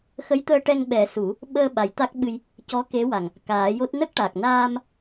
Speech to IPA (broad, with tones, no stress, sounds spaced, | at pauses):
x ə˧˥ j t̪ əː˧ ʈ ɛ˧ ŋ ɓ ɛ˨˩˦ s u˨˩˦ | ɓ əː˧ ɓ a˨˩˦ j t̪ a˦˥ k̚ ɓ ɨ˧ j | c ɔ˧˥ k e˧˥ w a˨˩ ŋ | k aː˨˩˦ j o˦˥ t̚ n ə˦˥ k̚ ʈ a˨˩ k̚ n aː˧ m